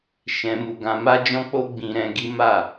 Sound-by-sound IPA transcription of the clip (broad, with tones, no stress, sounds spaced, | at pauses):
ʃ ɛ̃˧ m u˧ ɡ ã˧ m a˦ d͡ʒ ɔ̃˦ k͡p o˦ ɡ͡b ĩ˧ ɾ ɛ̃˧ ɡ i˦ m a˦˨